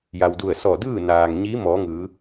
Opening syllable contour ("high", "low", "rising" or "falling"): low